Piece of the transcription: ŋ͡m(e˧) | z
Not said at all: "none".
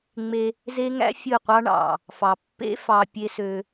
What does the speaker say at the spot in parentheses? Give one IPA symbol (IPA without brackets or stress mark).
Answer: e˧